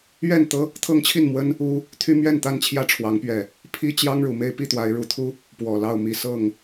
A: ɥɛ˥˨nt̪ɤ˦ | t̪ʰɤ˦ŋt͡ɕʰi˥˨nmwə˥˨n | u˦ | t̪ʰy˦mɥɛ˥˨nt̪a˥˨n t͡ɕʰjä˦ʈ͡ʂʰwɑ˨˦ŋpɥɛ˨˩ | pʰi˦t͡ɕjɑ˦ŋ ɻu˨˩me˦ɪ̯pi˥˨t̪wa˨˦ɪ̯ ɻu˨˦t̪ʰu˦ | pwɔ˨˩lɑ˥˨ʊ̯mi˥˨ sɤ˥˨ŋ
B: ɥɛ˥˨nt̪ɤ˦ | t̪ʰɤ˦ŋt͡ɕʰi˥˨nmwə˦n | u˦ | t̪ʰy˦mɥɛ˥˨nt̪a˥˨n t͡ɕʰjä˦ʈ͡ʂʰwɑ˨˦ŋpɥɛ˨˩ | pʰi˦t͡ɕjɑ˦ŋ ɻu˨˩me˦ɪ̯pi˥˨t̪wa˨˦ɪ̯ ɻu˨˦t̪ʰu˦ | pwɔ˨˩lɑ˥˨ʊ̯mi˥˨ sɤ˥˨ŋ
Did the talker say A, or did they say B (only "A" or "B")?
B